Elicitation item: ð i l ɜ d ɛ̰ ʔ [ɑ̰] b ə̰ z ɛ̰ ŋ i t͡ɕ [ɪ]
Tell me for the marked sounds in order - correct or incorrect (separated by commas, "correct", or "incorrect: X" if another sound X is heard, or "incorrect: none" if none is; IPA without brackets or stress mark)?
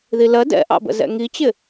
correct, correct